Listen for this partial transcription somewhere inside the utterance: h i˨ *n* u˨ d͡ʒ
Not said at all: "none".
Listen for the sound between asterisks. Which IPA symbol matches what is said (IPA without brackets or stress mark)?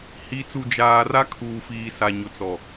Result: t͡s